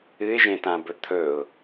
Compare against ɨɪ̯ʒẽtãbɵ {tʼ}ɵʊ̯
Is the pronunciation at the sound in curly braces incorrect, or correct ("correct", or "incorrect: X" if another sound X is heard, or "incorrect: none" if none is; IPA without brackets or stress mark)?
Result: incorrect: t̪ʰ